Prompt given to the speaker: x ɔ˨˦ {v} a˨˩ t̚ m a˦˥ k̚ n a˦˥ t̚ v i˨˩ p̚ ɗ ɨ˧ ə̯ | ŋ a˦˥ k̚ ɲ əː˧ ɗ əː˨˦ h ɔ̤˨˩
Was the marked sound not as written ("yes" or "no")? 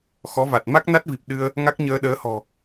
no